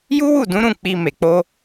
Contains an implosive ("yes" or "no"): no